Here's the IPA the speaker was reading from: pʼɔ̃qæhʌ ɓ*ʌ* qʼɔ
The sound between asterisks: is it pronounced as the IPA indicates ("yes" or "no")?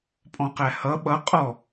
yes